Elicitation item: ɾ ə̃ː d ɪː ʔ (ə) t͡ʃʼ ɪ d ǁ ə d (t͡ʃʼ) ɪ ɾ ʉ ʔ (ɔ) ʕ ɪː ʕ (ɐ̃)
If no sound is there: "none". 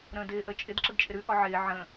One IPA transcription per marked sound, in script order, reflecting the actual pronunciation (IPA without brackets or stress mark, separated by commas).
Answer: ə, t͡ʃʼ, ɔ, ə̃